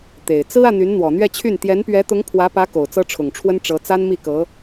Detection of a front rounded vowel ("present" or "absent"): present